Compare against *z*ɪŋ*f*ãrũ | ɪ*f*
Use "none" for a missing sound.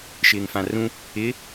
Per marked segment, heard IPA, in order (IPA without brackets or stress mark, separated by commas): ʃ, f, none